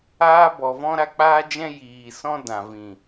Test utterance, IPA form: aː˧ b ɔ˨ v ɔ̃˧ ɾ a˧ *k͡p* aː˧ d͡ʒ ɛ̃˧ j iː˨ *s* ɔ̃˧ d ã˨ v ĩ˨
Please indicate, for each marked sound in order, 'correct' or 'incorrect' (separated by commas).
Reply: correct, correct